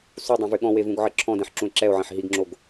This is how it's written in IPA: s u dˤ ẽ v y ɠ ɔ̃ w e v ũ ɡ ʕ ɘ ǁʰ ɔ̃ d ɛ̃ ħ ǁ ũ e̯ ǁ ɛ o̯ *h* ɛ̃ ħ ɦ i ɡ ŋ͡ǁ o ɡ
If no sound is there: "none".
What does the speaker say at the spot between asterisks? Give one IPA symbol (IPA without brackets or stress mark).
ʕ